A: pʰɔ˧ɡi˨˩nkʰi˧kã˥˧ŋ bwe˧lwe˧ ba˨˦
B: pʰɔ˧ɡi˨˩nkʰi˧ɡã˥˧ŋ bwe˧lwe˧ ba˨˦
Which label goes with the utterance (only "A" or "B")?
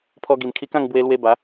A